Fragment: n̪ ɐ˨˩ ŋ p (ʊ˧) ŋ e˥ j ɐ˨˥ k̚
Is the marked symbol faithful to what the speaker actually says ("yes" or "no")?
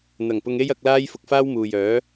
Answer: yes